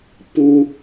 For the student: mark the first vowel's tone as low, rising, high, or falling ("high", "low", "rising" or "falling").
high